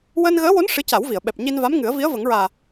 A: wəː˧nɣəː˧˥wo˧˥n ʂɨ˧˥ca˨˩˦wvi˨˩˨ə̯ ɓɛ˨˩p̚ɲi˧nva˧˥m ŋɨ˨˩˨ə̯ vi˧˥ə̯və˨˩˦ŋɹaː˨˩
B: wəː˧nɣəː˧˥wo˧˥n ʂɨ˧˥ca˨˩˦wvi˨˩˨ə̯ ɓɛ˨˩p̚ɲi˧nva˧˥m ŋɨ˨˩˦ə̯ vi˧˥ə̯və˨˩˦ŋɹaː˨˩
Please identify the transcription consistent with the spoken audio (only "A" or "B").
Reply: B